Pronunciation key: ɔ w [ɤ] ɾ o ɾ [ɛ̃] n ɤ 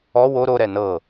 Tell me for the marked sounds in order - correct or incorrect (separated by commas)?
incorrect, incorrect